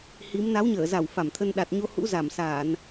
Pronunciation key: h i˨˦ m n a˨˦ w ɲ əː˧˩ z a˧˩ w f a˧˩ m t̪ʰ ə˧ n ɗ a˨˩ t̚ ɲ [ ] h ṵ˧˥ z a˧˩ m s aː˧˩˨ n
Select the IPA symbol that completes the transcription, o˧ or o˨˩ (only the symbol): o˧